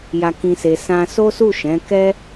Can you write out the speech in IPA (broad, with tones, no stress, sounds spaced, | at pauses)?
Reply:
j a˧ k ĩ˧ s e˧ s ã˧ s o˦ s u˦˨ ʃ ɛ̃˨˦ k ɛ˦